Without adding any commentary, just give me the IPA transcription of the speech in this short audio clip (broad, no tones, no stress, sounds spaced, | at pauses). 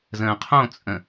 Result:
z ə̃ː qʰ õ t͡sʼ ə̃